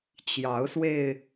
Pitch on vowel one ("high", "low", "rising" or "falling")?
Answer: rising